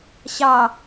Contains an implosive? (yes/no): no